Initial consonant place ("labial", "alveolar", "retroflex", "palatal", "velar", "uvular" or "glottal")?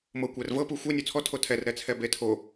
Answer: labial